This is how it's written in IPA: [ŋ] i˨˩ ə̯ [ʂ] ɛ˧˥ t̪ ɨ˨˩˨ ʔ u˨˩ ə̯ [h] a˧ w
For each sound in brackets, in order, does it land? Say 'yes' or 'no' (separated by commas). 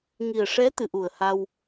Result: yes, yes, yes